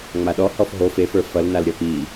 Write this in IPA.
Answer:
ŋ͡m a ɗ ɔ h ɔ f ɦ o f e f ə˞ f ʌ l n a l ɾʲ ʌ p i

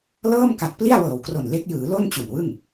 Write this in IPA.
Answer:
l ɤː˥˩ m k a˨˩ t̚ p l i˥˩ a̯ w ɤː˨˩ w k r o˨˩ n l e˦˥ k̚ j ɯː˩˦ l o˥˩ n t͡ɕ u˨˩ n w ɯ˥˩ ŋ

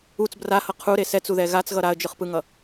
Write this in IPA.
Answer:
u t͡s b r a h ʌ qʰ u ɾ e s ɛ t͡s u ð ɛ ɣ a t͡s ɣ ʌ ɾ a ə̯ d͡ʒ ɯ χ p ɯ ŋ ʌ

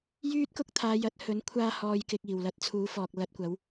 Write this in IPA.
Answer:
j yː˥ t̚ k ʊ˥ k̚ t̪ʰ aː˨˧ j ɐ˨˥ t̚ h ɵ˨˥ n kʷʰ aː˧ h ɔː˨ j k ɪ˨ k̚ iː˨˩ w l ɐ˧ t̚ t͡sʰ uː˨˥ f ɔː˨ k̚ l ɐ˧ t̚ kʷ ɐ˨˥ w

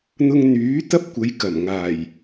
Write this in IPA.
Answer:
n̪ ʊ˧ ŋ n̪ yː˨˥ t̪ ɐ˥ p̚ kʷ ɐ˨˧ j k ɐ˨˩ m ŋ aː˨˩ j

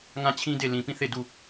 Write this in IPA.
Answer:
ŋ ã˦˨ t͡ɕʰ ĩ˦ d e˦˨ l ĩ˨ p ĩ˦˨ θ e˦˨ d u˦˨

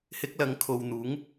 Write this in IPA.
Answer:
h ɪ˥ k̚ l ɐ˧ ŋ kʰ o˨ w n̪ uː˨˥ ŋ

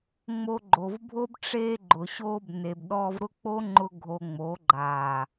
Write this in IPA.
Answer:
ŋ͡m o˧ ɡ͡ǃ o˨ v bʱ o˦ b ʈ͡ʂ eː˦ ɡ͡ǃ ʊ˨ ɕ oː˧ b n e˨ b ɗ ɔː˧ v ɾ ʊ˦ k͡p o˦ ŋ͡ǃ ʊ˦ ɡʱ o˧ ŋ͡m o˨˦ ɡ͡ǃ aː˨

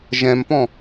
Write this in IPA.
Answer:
ʒ ɛ̃ m p ɔ̃

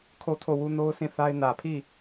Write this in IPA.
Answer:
kʰ o˦˨ tʰ o˦˨ w u˦ n o˦ ʊ̯ sʰ ĩ˦˨ θ a˦ ɪ̯ n ä˨ pʰ i˦˨

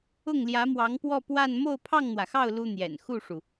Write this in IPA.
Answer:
ʊ˥˩ ŋ l j ä˧˥ m w ɑ˧˥ ŋ p w ɔ˥˧ p w a˥˧ n m o˥˧ ʊ̯ pʰ ɑ˥˩ ŋ n̪ w ä˩ x ɑ˥˩ ʊ̯ l u˥ n̪ j ɛ̰˨˩ n x u˥˩ ʂ u˩

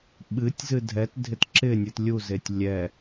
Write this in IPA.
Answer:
ɓ ɨ tʲ z ɨ dʱ ɛ t dʱ ɪ t ǁ ɪ nʲ ɨ t lʲ u z e tʲ lʲ ɛ

